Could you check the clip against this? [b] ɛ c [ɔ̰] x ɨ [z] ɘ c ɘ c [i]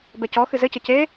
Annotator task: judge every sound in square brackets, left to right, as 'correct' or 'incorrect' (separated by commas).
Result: correct, incorrect, correct, incorrect